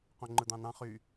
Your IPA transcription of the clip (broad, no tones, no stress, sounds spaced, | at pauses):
q õ ŋ͡ǃ ɯ d̪ ɑ̃ n ɑ̃ χ y